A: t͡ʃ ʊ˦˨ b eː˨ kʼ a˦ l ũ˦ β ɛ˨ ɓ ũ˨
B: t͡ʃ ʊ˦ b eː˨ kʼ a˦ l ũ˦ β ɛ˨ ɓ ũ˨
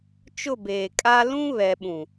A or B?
A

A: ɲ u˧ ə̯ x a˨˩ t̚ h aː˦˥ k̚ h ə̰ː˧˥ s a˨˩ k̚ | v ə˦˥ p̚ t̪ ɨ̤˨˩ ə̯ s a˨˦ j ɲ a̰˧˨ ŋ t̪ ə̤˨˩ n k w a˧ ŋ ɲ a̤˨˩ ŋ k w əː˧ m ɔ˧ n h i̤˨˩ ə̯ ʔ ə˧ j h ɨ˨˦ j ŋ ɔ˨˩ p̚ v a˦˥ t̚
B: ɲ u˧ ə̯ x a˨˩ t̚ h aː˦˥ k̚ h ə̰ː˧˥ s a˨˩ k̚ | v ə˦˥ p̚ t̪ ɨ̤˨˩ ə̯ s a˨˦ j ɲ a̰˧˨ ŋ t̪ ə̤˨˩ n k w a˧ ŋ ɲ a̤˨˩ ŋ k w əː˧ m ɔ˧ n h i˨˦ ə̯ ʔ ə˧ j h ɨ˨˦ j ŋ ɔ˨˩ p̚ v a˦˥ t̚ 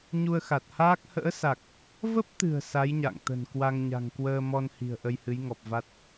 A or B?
A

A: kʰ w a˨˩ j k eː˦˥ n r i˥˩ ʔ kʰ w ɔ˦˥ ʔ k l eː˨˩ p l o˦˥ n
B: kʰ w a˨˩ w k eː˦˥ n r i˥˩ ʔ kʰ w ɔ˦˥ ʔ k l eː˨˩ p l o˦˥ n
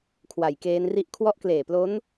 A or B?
A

